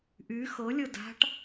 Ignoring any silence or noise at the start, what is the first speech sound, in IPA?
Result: ʔ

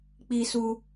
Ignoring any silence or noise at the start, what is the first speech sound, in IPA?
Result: k͡p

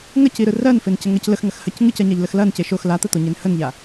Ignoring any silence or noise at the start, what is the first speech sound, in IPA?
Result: ŋ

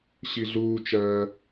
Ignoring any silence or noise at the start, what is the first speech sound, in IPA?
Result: ɕ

